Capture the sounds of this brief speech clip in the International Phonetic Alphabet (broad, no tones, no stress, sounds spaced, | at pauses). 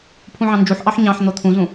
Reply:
pʰ ũ ʕ ɑ̃ n d͡ʒ u ħ ʔ ɑ ħ ɲ ɑ̃ ħ n̪ o t̪ʰ ũ z ũ